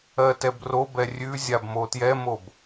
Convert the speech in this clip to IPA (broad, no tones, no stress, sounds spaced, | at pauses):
ɜ t ɛ b r o b ɛ rʲ ʉ zʲ a b m o t j ɛ m o b